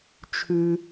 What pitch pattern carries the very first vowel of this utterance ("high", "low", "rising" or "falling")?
low